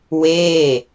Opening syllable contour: falling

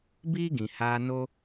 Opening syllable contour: high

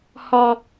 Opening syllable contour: high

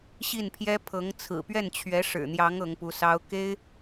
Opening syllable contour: falling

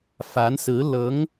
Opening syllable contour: rising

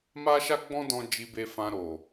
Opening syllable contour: high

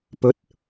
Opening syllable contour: rising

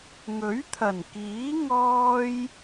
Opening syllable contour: rising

